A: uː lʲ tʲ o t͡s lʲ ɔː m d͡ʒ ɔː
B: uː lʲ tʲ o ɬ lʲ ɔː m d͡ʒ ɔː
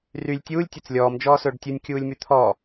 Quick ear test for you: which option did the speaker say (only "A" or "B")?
A